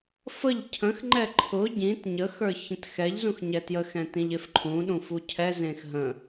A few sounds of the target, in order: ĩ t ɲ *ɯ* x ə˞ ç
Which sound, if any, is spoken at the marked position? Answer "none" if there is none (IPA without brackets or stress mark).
ə